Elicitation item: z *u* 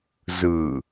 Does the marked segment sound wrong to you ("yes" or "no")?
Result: yes